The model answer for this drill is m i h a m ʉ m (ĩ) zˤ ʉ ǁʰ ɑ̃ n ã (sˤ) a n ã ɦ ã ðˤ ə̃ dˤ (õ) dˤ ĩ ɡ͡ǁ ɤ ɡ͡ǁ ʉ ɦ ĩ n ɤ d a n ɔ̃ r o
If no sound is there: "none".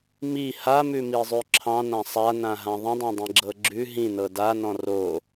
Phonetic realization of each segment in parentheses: i, sˤ, õ

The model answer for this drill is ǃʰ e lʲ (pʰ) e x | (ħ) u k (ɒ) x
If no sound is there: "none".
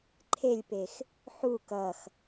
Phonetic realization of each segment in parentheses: p, ħ, ʌ

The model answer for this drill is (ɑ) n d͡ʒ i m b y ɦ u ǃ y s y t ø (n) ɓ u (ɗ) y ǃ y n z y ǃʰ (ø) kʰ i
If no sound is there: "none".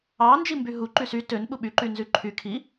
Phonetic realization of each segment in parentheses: ɑ, n, ɓ, y

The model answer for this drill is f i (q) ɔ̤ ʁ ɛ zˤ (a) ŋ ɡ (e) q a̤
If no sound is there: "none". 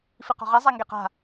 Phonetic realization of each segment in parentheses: q, a, e

